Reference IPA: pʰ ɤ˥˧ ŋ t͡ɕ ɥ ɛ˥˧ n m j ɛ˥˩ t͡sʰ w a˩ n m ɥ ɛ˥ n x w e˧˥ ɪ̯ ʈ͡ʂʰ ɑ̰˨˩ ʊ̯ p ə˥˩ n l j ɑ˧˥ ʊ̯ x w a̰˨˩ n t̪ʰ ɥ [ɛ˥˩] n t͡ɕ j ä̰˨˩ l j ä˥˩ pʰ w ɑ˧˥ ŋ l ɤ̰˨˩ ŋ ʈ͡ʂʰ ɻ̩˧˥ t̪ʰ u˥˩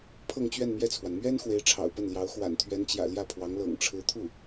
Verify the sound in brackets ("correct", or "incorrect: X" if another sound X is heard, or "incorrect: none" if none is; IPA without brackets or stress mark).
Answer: incorrect: ɛ˧˥